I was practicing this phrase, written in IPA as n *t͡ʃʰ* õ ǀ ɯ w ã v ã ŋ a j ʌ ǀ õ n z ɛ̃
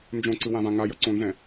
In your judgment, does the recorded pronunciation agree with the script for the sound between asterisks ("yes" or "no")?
no